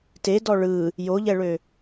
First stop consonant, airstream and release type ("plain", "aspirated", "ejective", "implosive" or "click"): plain